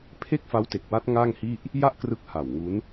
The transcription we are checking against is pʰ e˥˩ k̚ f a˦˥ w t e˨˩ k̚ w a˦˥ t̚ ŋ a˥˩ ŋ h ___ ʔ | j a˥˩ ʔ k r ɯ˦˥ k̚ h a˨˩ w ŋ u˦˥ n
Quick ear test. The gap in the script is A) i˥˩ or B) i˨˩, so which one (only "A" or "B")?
A